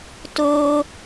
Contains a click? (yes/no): no